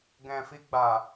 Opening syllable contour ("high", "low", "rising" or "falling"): low